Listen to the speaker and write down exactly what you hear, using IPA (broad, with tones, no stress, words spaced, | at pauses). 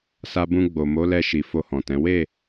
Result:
sa˧bũ˧ɡ͡bo˨ mo˨˦lɛ˧ ʃi˨fo˧hɔ̃˨tɛ̃˨˦ we˦˨